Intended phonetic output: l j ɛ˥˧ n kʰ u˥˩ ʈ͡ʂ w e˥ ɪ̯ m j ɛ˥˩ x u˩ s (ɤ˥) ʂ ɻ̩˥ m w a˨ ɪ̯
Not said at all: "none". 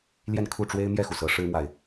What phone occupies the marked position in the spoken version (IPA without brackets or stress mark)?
ɤ˧˥